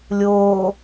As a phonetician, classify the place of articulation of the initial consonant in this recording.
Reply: alveolar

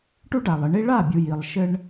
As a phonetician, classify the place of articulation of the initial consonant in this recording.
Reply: retroflex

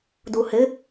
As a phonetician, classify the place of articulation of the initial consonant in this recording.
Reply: alveolar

